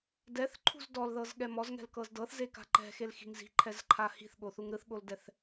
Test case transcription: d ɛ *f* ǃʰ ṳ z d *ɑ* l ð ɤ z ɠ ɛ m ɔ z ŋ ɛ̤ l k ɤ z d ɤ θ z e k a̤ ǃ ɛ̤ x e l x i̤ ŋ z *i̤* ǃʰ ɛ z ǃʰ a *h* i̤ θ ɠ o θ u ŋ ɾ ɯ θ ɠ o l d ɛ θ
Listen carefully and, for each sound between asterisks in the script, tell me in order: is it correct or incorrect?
incorrect: θ, incorrect: ɔ, correct, correct

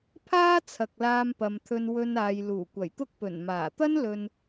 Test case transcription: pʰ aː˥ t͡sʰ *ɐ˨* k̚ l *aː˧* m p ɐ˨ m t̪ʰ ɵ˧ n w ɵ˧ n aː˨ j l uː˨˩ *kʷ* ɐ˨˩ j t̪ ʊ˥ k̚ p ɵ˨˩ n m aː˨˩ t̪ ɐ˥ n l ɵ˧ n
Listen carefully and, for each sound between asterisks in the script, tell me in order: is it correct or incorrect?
correct, correct, correct

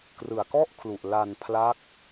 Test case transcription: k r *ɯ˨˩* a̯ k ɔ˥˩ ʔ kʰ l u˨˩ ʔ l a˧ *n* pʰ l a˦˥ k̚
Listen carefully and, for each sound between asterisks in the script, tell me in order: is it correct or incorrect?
correct, correct

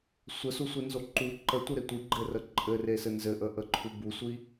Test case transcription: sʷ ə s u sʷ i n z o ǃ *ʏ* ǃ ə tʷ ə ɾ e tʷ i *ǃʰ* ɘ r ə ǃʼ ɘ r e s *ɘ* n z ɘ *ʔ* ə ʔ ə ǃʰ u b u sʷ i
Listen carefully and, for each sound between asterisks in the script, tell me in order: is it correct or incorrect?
incorrect: u, incorrect: ɡ͡ǃ, correct, correct

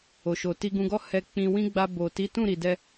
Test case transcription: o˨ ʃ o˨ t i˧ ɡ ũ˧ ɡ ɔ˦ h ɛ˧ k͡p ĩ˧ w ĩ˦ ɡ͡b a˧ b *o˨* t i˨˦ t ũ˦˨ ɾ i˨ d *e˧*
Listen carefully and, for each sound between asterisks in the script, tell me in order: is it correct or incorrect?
correct, incorrect: ɛ˧

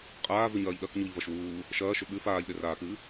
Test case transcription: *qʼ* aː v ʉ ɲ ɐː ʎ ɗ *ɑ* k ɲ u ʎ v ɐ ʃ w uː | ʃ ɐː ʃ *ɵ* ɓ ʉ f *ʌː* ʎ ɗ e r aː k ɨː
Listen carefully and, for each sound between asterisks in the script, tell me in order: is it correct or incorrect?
correct, incorrect: ɐ, correct, incorrect: aː

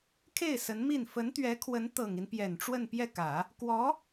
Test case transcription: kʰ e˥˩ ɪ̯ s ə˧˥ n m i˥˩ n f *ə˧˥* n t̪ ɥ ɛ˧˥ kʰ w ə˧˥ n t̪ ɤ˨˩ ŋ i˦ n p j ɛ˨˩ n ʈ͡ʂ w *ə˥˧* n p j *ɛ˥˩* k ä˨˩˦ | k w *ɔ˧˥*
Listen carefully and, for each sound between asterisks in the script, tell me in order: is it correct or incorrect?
correct, correct, correct, correct

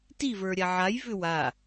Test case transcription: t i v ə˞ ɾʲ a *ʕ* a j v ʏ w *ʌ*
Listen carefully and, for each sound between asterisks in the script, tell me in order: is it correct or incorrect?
correct, incorrect: a

